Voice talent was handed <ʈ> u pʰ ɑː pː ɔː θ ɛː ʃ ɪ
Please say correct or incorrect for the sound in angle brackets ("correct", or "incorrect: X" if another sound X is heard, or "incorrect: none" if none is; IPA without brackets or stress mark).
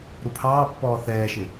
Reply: incorrect: ɾ